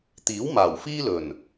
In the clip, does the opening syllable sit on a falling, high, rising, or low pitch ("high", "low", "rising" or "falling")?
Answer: rising